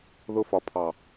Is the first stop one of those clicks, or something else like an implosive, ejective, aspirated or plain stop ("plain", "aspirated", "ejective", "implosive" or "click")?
aspirated